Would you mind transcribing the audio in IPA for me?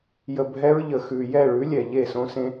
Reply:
j ə˨ bʱ ɛ˧ ɹ ʎ ə˨ x ʉ˨ j ɛ˦˨ ɭ ʉ˨˦ lʲ ɛ˨ ʎ e˦˨ s õ˧ s ẽ˧

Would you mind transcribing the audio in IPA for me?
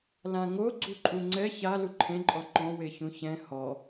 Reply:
l ã ŋ o ɡ͡ǀ u ǃʼ u ŋ͡ǀ ɛ ç a l u ǃʰ ẽ ǃʼ ɔ ǃ ɔ̃ w e ç ũ ç ɛ̃ h ɔ

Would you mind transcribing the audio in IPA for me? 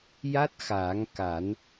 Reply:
j a˦˥ t̚ x aː˨˩˦ ŋ k a˨˩˦ n

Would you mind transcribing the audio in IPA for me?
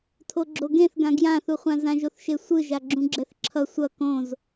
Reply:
tʰ o ɡ͡ǁ o ɡ ẽ θ ɡ ã ɡ j ã θ u χʷ ã z ã ʒ o θ ʃ e sʷ ɯ ʒ a ɡ͡ǁ ũ ɡ͡ǁ ɛ θ ǁʰ ʌ sʷ ʌ k õ z

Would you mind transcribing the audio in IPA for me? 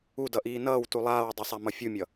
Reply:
u d ʌ ʔ iː n ʌː w t u lˠ aː w dˤ i sˤ a m ʌ fʲ u mʲ ʌ

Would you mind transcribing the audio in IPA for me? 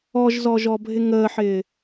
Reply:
ɔ ʒ z ɔ ʒ ɔ bʱ ɪ ŋ əː ħ ɪː

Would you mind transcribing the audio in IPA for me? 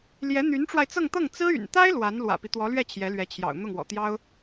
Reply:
l j ɛ˧˥ n̪ y˧˥ n ʈ͡ʂ w a˧ ɪ̯ t͡s ɤ˥˧ ŋ t̪ ɤ˥˩ ŋ t͡s ɹ̩˥ y̰˨˩ n t̪ a˥ ɪ̯ l w a˧˥ n l w ä̰˨˩ p i˦ t̪ w ɔ˧˥ l ɥ ɛ˥˩ t͡ɕʰ j ɛ˧˥ l ɥ ɛ˧˥ t͡ɕʰ j ɑ̰˨˩ ʊ̯ n̪ ʊ˥˩ ŋ w ɔ̰˨˩ t̪ j ɑ˥ ʊ̯

